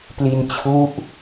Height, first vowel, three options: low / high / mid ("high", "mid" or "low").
high